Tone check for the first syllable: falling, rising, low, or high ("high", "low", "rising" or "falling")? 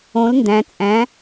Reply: rising